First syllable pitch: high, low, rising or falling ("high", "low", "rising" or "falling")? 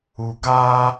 low